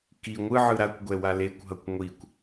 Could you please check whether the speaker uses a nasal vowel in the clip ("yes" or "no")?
no